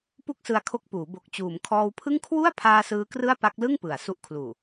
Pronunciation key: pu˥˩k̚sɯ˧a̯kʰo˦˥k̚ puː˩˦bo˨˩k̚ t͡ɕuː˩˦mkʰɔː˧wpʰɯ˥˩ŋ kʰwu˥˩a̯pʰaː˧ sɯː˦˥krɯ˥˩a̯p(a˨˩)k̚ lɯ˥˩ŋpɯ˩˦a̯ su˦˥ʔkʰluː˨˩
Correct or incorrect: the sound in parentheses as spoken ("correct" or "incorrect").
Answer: incorrect